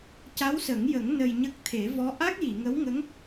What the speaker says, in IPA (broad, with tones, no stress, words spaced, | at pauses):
ca˧˥wsə˨˩˦ŋjə˨˩˦ŋ nə˧jɲə˦˥k̚ t̪ʰe˨˩˦vɔ˧˥ ʔa˦˥k̚ji˨˩˨ŋə˧˥w ŋə˧˥ŋ